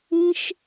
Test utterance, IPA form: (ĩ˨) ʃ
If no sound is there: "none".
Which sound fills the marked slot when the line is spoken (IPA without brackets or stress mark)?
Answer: ĩ˦